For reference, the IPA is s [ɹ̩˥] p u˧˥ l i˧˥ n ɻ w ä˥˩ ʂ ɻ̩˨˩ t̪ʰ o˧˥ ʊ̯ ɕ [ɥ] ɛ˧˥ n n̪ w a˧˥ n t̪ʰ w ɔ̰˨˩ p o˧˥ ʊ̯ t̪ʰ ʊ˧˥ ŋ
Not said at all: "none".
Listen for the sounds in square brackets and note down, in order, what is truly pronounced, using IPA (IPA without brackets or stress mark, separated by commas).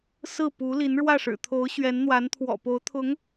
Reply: ɹ̩˥˩, ɥ